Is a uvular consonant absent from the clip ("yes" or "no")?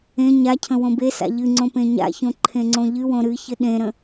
yes